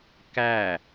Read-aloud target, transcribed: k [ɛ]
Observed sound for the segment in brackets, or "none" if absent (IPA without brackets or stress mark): æ